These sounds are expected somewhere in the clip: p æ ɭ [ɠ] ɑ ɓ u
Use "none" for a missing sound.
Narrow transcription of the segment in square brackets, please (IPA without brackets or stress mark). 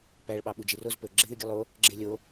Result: ɓ